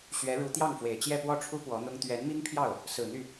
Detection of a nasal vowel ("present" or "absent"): absent